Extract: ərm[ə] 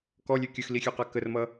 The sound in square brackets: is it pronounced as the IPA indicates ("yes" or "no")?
no